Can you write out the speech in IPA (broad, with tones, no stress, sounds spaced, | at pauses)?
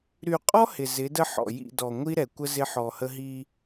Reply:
ɾ y˨ qʼ ɔ˦ h ɪ˨ z ɪ˨˦ d ə˦ ħ ɔ̰˨ j ḭ˦˨ d ɔ˨ ŋʷ i˦ ɾ ɛ˨ kʷ ə˦ z ɪ˦ ħ ɔ˨ h ə˦ ɦ i˦